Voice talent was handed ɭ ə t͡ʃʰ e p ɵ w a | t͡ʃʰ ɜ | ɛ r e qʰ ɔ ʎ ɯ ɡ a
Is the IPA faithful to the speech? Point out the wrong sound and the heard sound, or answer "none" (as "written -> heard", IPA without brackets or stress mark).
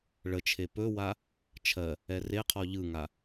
ɡ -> ŋ